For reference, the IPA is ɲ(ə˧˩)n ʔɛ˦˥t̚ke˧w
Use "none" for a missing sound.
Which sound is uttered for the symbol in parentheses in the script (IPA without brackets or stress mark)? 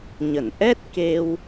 ə˧˩